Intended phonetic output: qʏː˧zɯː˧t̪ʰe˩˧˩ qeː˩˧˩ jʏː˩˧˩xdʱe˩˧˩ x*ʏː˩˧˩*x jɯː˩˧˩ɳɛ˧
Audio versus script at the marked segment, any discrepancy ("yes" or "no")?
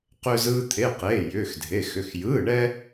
yes